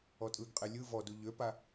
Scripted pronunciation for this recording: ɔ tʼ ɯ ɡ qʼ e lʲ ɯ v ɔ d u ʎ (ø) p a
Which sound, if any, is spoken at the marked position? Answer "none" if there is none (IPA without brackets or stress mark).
ø